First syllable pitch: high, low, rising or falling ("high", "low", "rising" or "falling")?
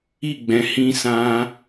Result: falling